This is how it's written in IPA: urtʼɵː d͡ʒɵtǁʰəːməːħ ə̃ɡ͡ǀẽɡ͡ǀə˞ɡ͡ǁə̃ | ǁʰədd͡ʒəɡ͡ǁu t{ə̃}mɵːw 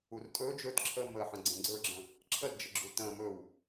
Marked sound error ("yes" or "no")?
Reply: yes